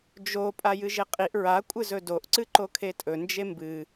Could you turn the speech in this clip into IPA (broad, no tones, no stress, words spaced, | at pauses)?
d͡ʒo pʼajɨʒeqʼiʔ ɹa kʷʼɨzɵdoʔ ǀɨǃokʰetʼɵ nd͡ʒembɨ